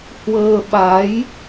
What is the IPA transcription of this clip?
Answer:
h w əː˧ ɓ a˨˦ j

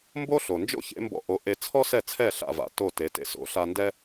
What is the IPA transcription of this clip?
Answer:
m b o˥ ɬ o˩ n d͡ʒ o̰˥ ç ḛ˩˥ m b ɔ̰˧ ʔ o˩˥ ʔ e˧ t͡sʰ ɔ˥ s ɛ˥˩ t͡sʰ ɛ˥˩ ɬ a̰˥˩ v a̰˧ t o˥˩ t e˩˥ t ḛ˩˥ s o̰˩˥ ɬ a˧ n d ɛ˥

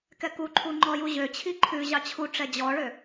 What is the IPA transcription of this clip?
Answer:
k ɛ k u ǃʰ u ŋ͡ǃ ɔ j u ʑ ø t͡ɕʰ i ǃʰ ʉ ʑ ɑ t͡ɕʰ u ʈ͡ʂ ɛ d͡ʑ ɔ ɭ ø

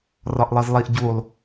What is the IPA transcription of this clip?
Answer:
r ɒ ʔ lˠ ɤ z lˠ i ʔ ɟ u lˠ

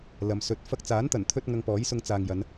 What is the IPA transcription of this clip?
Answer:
l ɐ˨ m s ɵ˨˥ t̚ f ɐ˧ k̚ t͡s aː˨˥ n t̪ ɐ˨˩ n t̪ʰ ɵ˧ t̚ ŋ ɐ˧ ŋ p ɔː˨˥ j s ʊ˧ ŋ t͡s aː˨ ŋ j ɐ˨˧ n

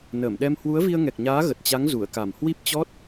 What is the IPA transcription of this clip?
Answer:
n əː˧˩ m ɗ ɛ˧ m h w u˨˦ ə̯ v i˧ ə̯ ŋ ɛ˨˩ k̚ ɲ aː˨˦ ɣ ə˨˩ t̚ t͡ɕ a˨˦ ŋ z u˧˩ ə̯ k a˧˩ m h w i˦˥ p̚ t͡ɕ ɔ˦˥ t̚

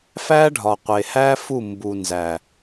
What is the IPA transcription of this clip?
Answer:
f æ˦ ɖʱ ɒ˨ qʷ e˨ h æ˦ f u˦˨ m b u˨ n z æ˨

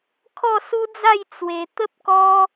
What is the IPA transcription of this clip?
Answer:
kʰ ɔ˥˧ s u˦ d͡z a˥˧ j t͡s w e˧ t̪ ə˦ p̚ k ɔ˦

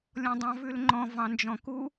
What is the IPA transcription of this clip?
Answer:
lʲ ɔ̃ dˤ ɑ̃ v ʉ l ŋ͡ǃ ɔ̃ v ɑ̃ n d͡ʒ ɔ̃ k u

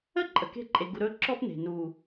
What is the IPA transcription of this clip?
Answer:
ə˦˨ ǃʼ ə˨ k e̤˦ ǃʼ e˨ ɡ u˨ ɾ ɵ˦ ǁ ɔ˦ p n e̤˨ n u˨

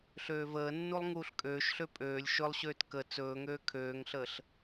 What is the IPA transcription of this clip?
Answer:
ɬ øː v əː nː u lˠ ŋ uː ɬ kʼ øː ʃ ɬ ø pʼ øː lʲ ʃ ɵ lˠ ɕ øː t k ə t͡s ɵː ŋ øː kʰ øː ŋ ɬ əː ɬ

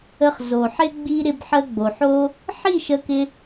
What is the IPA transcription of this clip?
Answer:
ə˧ χ z o˨ ħ ɪ˦ ɡ͡b i˧ ɾ ɪ˧ b ħ ə˧ ɡ͡b o˨ ħ o˦ | ħ i˦˨ ʃ ə˧ k ɪ˧

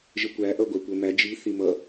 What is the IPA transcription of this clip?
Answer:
ʒ ə kʷ æ ʔ ʌ ɡʷ æ kʷ ə˞ m æ d͡ʒ i θ i m ʌ

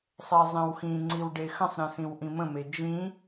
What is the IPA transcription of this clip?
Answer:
sˤ ɛ zˤ ĩ w x ĩ ŋ͡ǀ i w ɖ e x ə̃ sˤ ɾ ĩ s ĩ w ʔ ĩ m ə̃ m e d͡ʒ ĩ

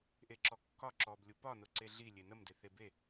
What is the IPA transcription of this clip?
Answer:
ʔ e ǁ ɔ kː ɒ ǁ ɔ b lʲ u p ɒ n ʊ ǀ e ɮ i lʲ e n ə m d e θ e b e

